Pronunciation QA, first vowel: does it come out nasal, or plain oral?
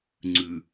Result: oral